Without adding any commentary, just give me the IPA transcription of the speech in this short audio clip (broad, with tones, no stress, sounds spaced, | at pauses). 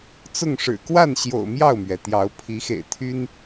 t͡s ʊ˥˨ ŋ ʂ ɻ̩˨˩ k w a˥˨ n ɕ j o̰˨˩ ʊ̯ m j ɑ˥˨ ʊ̯ m ɥ ɛ˩ t̪ j ɑ˨˦ ʊ̯ pʰ i˨˦ x ḛ˨˩ ɪ̯ t̪ʰ y˦ n